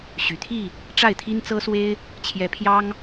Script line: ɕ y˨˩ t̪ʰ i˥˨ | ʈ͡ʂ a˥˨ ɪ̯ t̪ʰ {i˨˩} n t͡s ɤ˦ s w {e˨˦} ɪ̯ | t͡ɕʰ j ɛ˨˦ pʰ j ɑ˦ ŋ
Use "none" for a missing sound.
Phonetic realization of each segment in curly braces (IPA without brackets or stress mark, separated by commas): i˦, e˦